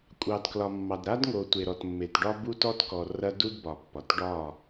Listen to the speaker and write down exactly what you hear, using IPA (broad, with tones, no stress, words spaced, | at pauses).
kʷʼɑ˨dklɒ˨mːɑ˨d ɾa˦dŋo˨ tʷe˨ɾɔ˨tmːe˨t ɖɒ˦ bu˦tɔ˦tkɔ˨ rɐ˦du˦dbɒ˨pːɒ˨t ɖɒ˦˨